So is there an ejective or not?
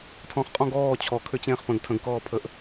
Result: yes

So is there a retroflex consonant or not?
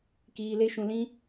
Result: no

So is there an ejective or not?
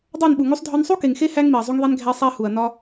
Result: no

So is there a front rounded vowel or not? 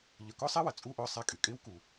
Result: yes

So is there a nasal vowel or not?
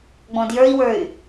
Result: yes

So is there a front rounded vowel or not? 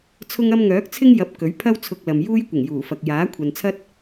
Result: yes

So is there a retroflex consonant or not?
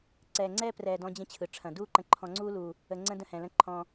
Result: yes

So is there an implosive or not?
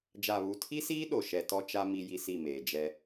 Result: yes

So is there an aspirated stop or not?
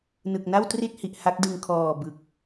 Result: yes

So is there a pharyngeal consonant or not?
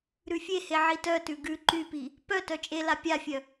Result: yes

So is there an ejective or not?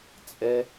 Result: yes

